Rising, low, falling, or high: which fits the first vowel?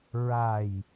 low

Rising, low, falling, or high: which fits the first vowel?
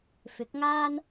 rising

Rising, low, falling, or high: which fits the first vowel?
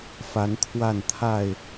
rising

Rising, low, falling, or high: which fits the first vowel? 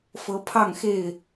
rising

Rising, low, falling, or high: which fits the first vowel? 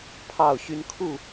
falling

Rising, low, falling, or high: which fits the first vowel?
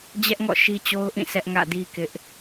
high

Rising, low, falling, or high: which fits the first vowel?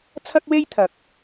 high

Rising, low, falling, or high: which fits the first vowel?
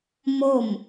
falling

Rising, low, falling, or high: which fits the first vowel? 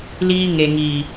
high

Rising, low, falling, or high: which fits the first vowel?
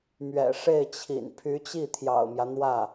low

